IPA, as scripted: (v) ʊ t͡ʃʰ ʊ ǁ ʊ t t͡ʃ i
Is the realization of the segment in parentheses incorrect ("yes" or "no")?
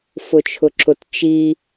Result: yes